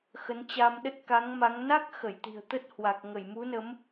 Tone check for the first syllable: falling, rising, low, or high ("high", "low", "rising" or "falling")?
rising